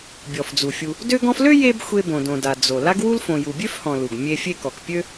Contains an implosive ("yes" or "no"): no